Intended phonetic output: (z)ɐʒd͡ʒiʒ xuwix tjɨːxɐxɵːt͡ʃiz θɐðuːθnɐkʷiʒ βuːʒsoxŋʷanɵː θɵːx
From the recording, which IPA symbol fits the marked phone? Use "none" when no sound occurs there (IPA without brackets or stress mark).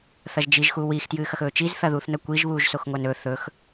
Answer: θ